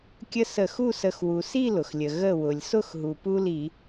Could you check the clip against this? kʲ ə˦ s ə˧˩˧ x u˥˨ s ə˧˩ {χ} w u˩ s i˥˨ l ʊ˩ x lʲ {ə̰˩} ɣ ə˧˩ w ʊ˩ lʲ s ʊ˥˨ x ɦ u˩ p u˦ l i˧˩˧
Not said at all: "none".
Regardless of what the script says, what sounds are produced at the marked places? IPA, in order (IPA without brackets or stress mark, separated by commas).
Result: x, ə˩